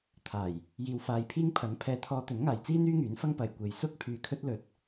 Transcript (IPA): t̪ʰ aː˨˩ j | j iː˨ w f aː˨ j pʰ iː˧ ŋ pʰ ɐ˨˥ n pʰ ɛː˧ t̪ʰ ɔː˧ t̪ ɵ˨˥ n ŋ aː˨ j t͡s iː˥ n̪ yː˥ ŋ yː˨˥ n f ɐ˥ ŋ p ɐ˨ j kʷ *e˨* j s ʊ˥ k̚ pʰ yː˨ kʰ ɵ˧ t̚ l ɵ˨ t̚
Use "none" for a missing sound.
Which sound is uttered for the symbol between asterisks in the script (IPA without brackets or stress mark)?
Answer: e˨